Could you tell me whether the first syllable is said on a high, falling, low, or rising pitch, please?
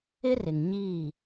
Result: high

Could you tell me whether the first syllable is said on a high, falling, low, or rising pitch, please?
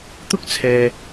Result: high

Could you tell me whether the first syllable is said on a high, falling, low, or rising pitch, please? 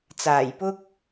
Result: low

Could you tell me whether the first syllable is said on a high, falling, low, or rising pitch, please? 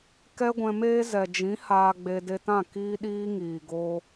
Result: high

